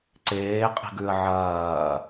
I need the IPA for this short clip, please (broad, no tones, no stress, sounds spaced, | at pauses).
ǀ eː qʼ i̤ ɡ ʉ ə̯ ʕ ɐː